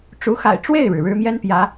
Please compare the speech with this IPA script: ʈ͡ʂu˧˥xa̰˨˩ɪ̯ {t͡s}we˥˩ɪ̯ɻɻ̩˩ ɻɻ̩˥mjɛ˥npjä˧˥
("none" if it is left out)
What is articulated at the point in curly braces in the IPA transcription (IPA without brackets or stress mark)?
ʈ͡ʂ